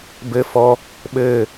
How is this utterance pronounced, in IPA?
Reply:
b ɘ f ɔ | ɓ ɘː

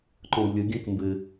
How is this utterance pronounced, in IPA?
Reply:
ǃ ɔ̃ b lʲ ə ɡʲ ə̃ k m b ɘ

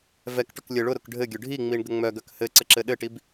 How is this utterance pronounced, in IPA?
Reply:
v ɛ k ʈ ʊ k lʲ ɘ ɭ ʊ ɾ ʊ k ɖʱ ɘ ɡʲ ʊ ɖʱ i ŋ͡m i ɳ ɡ ə ŋ͡m œ ɡ œ k h ɘ ǀ ə ǁ ɘ ɗ ɘ ʈ i b

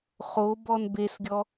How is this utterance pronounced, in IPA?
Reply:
χ o b ɔ n b e s ɡʲ ɔ

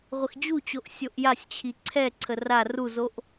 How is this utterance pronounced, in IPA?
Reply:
ʁʷ ə x d͡ʑ u t͡ɕ o ʔ sʲ o ʔ j a sʲ t͡ɕʰ i ǀʰ ɛ ǀʰ ə r a r u z o ʔ

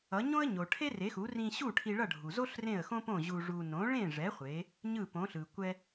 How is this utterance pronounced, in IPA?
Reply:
ʌ˩˥ ɲ õ˥ ə̯ ɲ o˩ ʈʰ e˥ r e˩˥ x u˩˥ r ĩ˧ ɕ u˥˩ ʈʰ i˧ ɭ ʌ˥˩ ɖʱ u˩ z o˥ ɬ r ẽ˥˩ ə̯ x õ˥ p õ˥˩ ʑ u˧ ʐ u˧ n õ˩˥ ɭ ẽ˥˩ ʐ ɛ˩˥ χʷ e˩˥ | ɲ ɯ˥˩ p õ˩˥ ɬ ɯ˩ kʷ ɛ˧

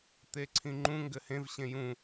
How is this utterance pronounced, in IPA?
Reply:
t̪ e ǀʰ ĩ ŋ͡ǃ ũ ŋ ɡ ɘ h ẽ v ɕ ẽ j ũ

